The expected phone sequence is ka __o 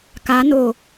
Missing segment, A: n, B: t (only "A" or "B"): A